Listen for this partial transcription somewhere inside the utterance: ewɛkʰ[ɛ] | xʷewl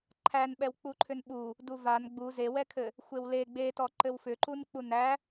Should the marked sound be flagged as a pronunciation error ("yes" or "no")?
yes